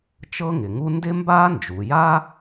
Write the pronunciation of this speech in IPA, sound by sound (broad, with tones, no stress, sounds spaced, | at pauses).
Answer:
t͡ʃ ɤ˥ ŋ ɪ˩ ŋ u˥ n d ɪ˥ m b aː˥ n d͡ʒ u˩ j a˥